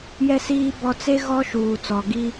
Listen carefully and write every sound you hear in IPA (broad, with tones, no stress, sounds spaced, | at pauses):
j ɛ˨ s iː˨ b ɔ˨ t͡s e˦ ɣ ɔ˦ ʃ uː˨ t͡s ɔ˨ ɡ i˦